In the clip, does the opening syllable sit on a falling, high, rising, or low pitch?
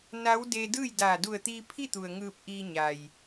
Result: rising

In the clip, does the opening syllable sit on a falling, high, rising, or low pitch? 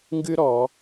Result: high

